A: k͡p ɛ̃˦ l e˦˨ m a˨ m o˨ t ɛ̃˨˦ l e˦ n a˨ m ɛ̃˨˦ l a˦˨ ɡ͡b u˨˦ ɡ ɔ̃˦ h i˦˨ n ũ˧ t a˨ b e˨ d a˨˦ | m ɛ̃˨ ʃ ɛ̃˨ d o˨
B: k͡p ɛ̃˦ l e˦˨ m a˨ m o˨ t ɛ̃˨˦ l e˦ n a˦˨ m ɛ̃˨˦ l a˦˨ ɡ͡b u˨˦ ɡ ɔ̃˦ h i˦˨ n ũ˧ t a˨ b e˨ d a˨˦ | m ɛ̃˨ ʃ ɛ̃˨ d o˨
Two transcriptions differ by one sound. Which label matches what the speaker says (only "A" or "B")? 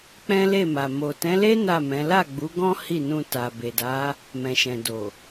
B